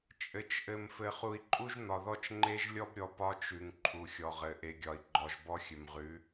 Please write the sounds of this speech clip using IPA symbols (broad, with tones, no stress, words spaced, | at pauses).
t͡ʃʼɘ˨t͡ʃ ʔɘ˨mfɘ˨ χu˨i̯ǃʼu˦ʒn̪ɒ˨ðɔ˦t͡ʃ ŋ͡ǃe˦ʒlʲɔ˦bɾʲɔ˨ pɒ˦t͡ʃʉ˨ŋ ǃʰu˨xʲɔ˨ʁɘ˨ ʔe˨ɡʲɒ˨i̯ɡ͡ǃɔ˨ʒbɔ˦ xʲɘ˨mʁʉ˨˦